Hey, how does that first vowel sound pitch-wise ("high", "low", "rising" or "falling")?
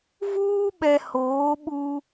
high